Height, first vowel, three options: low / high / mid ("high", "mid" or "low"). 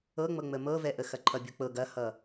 mid